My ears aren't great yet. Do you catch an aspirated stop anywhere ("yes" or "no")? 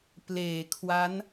yes